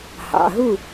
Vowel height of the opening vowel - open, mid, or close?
open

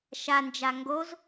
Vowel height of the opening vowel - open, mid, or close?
open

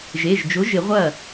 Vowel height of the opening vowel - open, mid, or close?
mid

